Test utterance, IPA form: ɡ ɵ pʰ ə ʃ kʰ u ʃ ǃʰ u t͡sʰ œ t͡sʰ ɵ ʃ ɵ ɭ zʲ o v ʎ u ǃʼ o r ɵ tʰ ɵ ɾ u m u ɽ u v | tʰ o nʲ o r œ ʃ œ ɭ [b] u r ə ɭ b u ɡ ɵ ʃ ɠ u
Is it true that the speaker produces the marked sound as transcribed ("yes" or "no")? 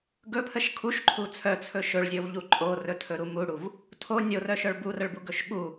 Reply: yes